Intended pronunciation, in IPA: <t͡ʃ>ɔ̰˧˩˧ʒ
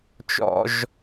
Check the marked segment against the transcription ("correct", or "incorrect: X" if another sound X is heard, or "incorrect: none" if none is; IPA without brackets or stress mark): correct